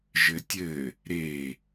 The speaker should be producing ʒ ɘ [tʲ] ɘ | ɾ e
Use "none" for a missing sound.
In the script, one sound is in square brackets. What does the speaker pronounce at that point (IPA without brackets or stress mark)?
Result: tʲ